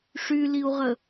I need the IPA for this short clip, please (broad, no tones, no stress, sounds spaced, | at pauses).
ʂ y l i u̯ ʁ ə